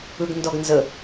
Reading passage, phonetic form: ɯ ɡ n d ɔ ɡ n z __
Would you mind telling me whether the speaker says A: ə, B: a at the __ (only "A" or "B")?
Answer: A